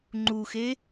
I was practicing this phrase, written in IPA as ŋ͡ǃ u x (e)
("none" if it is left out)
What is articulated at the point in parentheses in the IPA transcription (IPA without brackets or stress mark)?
e